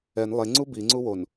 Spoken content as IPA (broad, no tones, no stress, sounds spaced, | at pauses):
ɛ n lˠ e ŋ͡ǀ u b i ŋ͡ǀ u w o n